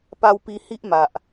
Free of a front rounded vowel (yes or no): yes